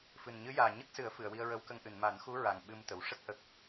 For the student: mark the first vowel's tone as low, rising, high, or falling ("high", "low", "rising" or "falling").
low